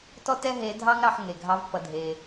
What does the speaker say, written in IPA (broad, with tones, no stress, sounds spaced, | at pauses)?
t ɔ˥ t ɛ˥ ɦ e˧˥ dʱ ɑ˥ ŋ ɾ ɑ˧ ħ ŋ e˩ ɡʱ ɑ˧˥ v p ʌ˩ dʱ e˩